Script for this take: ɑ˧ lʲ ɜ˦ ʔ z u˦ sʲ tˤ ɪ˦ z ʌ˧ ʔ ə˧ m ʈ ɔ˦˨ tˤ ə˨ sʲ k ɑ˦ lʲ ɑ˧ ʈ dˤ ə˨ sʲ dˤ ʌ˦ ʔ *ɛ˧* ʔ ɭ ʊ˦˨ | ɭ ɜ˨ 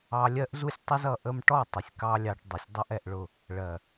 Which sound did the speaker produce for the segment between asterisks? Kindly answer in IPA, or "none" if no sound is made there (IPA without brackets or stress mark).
ɛ˧